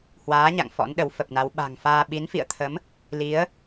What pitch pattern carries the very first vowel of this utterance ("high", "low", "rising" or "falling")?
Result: rising